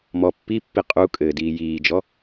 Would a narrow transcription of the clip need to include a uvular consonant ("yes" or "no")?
yes